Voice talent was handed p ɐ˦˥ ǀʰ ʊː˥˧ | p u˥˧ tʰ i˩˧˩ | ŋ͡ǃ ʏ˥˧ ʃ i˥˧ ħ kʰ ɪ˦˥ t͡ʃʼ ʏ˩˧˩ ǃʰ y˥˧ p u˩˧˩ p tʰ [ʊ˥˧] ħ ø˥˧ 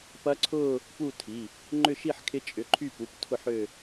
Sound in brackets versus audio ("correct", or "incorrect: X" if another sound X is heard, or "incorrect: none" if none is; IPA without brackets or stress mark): correct